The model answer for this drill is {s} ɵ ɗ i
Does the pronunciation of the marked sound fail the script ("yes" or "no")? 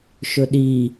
yes